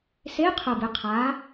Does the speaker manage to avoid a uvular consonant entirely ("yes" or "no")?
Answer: no